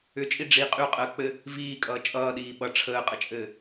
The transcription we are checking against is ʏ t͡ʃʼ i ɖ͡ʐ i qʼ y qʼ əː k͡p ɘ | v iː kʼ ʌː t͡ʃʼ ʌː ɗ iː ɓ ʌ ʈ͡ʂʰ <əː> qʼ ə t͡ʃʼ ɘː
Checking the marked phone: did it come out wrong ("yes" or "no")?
no